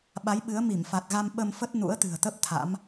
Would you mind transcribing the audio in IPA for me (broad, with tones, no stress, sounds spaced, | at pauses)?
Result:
ɓ a˨˦ j ɓ ɨ˨˦ ə̯ m i˧˩ m f a˨˩ t̚ ɣ a˧ m ɓ ə˧ m f ə˦˥ t̚ n ṵ˧˥ ə̯ t̪ ɨ̤˨˩ ə̯ t̪ ə˦˥ p̚ t̪ʰ a̰˧˥ m